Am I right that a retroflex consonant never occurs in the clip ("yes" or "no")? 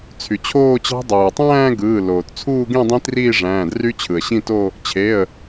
no